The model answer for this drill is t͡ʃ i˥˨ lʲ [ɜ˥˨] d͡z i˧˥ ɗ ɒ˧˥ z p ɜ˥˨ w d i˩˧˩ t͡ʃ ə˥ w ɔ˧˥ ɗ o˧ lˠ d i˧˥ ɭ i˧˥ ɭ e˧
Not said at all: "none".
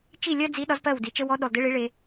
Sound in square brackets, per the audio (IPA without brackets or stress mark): ɜ˥